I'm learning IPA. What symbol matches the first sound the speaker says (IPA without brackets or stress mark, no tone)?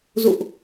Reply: z